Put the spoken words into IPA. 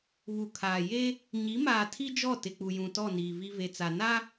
β u˨ kʰ aː˨ j e˦ | ɲ i˨˦ m aː˨ tʰ i˦ d͡ʒ ɔ˦˨ t ɪ˨ k͡p u˨ j ũ˨ t ɔ˦˨ n iː˨ v i˦ v e˨ t͡s a˨ n a˦

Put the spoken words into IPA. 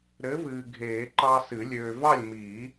ɾ ɘ˨˥ v ɨː˨ ɡʱ eː˨˩˦ ǃ ɑ˦ s ɨ˨˩˦ lʲ øː˨ v ɑ˥˨ lʲ m iː˨˩˦

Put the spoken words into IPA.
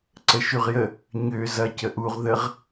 ǀ ə ʃ y ʁ j ə | ɲ ø z ɐ c ə ʔ u ʁ ð ə ʁ

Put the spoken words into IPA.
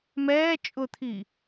m ɛː t͡ʃʼ ʊ t̪ʰ i

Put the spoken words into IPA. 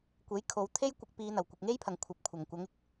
kʷ e˨˥ j kʰ o˨˧ w t̪ʰ e˥ j kʷ ɪ˧ k̚ p iː˨˧ n̪ ɐ˨˩ w kʷ ɪ˨ k̚ ŋ e˥ j pʰ ɐ˨ ŋ kʷʰ ɐ˨˥ p̚ kʷʰ ɐ˨˩ ŋ kʷ ɐ˨˥ ŋ ɪ˨˥ k̚

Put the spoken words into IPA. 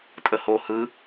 tʼ ə h o h ɯ

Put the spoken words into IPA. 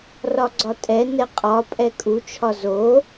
r ɒ ɡ͡ǀ ɒ tʼ ɛ n ɛ qʼ ɒ pʼ ɛ kʼ u t͡ʃʰ ɒ z o

